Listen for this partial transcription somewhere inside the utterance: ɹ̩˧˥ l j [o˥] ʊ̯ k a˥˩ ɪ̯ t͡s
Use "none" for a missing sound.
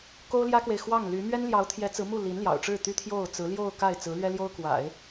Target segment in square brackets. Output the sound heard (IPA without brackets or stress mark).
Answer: o˥˧